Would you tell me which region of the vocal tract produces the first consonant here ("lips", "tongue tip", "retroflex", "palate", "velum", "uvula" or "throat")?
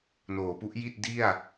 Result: tongue tip